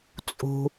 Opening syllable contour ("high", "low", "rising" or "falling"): low